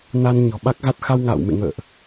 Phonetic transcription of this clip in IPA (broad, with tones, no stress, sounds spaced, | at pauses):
n a˧ n ɲ ɔ̤˨˩ ɓ a˦˥ k̚ ɣ a˦˥ t̚ x a˧ w ŋ a̰ː˧˨ w m ḛ˧˨ ŋ ə̰ː˧˨ ʔ